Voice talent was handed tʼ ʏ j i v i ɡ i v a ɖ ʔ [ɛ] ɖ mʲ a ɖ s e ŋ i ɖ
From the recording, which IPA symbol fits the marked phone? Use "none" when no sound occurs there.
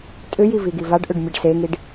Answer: ʏ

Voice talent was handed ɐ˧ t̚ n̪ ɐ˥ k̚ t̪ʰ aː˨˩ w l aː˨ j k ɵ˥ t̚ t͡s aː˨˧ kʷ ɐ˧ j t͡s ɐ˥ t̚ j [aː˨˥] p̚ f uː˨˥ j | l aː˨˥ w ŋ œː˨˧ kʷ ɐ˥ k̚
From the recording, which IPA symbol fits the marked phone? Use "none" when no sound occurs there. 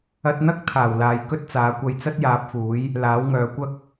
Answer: aː˨˥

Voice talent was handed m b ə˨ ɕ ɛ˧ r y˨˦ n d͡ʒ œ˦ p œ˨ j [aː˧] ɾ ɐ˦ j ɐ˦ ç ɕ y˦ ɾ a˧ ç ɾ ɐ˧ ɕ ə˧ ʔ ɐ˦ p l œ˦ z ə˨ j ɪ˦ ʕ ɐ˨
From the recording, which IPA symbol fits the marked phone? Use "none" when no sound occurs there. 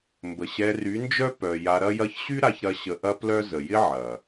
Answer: a˧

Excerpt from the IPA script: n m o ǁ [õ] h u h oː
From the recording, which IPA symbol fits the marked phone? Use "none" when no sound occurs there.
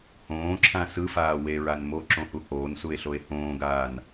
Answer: õ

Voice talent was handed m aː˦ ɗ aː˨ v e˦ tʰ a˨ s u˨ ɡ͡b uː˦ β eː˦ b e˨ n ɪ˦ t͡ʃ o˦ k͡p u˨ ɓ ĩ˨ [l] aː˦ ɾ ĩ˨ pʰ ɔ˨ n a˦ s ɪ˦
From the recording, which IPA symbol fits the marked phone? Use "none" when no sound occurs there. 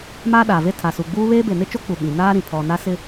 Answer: n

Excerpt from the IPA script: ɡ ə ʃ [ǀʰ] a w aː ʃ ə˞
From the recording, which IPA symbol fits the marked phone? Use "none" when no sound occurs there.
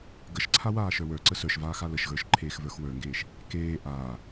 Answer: ǀʰ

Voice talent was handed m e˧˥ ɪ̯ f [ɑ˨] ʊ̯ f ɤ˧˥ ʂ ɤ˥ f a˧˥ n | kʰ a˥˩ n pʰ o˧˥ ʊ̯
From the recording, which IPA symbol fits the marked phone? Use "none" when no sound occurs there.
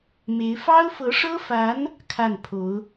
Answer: ɑ˥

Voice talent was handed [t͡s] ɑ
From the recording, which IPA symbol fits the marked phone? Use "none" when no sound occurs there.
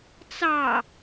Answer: t͡s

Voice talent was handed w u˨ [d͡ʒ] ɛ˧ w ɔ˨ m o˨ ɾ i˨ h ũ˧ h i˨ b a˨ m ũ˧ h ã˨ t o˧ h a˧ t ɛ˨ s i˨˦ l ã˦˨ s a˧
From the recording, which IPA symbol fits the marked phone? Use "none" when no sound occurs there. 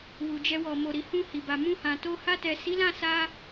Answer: d͡ʒ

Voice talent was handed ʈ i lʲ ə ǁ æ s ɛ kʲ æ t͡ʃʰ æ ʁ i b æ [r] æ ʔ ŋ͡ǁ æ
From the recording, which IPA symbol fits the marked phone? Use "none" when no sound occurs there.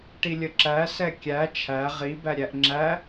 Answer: ɾʲ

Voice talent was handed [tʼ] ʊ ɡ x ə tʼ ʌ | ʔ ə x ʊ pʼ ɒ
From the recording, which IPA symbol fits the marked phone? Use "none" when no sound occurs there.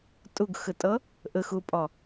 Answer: tʼ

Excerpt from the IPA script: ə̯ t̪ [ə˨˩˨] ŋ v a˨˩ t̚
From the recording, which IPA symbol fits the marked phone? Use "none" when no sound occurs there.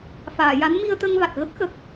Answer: ə˧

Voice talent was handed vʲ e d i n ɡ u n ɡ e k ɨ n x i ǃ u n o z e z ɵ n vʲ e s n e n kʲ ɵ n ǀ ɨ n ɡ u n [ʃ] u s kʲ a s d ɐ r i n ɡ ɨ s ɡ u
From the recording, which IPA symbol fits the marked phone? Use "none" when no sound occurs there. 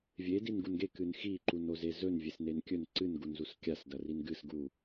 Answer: z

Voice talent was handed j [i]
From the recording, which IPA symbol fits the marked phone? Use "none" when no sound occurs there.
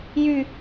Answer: y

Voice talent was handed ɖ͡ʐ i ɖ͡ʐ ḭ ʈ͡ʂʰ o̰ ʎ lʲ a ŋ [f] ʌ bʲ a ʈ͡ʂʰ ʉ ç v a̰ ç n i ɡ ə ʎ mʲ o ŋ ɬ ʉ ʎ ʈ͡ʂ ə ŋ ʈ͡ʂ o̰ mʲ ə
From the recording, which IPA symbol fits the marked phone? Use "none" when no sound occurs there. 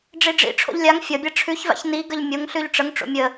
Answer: fʲ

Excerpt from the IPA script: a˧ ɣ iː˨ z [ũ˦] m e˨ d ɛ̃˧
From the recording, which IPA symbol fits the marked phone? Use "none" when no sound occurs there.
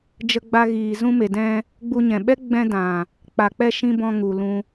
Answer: ũ˧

